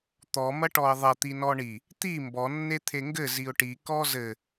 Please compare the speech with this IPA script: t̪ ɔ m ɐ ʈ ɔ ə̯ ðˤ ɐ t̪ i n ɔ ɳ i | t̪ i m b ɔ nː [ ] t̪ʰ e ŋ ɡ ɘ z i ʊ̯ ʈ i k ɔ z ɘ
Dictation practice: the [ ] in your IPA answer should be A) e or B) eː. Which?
A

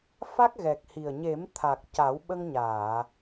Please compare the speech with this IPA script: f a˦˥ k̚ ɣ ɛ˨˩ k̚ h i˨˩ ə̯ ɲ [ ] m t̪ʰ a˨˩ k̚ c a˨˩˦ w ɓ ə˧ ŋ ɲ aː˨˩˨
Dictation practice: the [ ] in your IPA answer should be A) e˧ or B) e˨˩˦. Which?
B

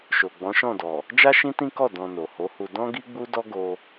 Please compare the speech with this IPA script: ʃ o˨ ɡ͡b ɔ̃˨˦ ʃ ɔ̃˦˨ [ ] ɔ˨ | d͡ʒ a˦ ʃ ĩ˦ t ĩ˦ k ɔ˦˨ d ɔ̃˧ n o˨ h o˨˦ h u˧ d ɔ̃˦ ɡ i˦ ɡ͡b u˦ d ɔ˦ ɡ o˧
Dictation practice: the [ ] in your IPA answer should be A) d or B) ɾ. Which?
A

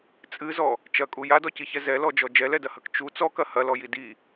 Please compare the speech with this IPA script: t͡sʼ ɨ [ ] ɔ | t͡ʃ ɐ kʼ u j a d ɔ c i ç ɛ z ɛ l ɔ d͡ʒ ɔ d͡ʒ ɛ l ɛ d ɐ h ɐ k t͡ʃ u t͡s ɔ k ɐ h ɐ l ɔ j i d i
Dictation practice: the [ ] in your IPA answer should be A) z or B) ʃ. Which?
A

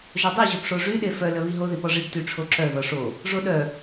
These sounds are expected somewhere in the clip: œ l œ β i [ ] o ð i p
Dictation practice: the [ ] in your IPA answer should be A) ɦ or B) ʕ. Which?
A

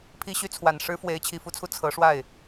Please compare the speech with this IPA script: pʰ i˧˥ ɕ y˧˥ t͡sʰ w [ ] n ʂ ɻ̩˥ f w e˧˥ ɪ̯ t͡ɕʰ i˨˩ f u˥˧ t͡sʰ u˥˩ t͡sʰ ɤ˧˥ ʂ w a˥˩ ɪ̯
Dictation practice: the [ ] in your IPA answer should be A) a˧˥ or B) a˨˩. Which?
B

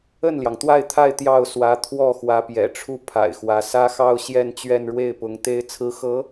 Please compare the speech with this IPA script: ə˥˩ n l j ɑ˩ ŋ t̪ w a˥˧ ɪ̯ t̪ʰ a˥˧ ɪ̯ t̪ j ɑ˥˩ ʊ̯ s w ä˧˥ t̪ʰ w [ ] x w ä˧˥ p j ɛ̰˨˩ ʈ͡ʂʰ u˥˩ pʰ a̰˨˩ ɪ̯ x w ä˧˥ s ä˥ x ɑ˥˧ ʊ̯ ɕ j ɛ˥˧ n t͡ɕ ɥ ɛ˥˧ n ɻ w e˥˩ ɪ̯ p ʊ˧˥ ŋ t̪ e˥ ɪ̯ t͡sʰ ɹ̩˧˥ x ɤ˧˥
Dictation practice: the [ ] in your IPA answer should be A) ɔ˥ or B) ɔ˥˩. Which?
B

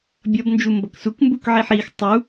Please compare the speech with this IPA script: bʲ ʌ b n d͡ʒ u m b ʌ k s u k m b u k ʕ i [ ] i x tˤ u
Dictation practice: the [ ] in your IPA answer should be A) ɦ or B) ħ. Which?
B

